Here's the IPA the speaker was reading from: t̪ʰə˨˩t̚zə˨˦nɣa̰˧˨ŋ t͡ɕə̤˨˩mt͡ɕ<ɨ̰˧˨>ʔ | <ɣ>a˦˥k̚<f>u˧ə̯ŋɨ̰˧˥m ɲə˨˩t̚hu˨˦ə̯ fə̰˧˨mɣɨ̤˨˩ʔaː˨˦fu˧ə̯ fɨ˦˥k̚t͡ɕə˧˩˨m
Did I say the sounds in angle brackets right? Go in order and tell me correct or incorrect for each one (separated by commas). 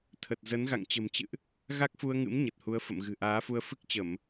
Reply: correct, correct, correct